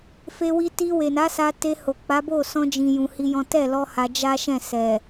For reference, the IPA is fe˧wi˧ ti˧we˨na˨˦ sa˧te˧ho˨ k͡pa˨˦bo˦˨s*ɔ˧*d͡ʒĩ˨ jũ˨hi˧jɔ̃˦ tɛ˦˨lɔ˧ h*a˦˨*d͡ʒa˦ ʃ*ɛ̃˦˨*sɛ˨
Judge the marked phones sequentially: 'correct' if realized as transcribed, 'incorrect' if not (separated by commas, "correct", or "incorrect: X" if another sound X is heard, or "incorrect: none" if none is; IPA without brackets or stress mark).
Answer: incorrect: ɔ̃˧, incorrect: a˧, correct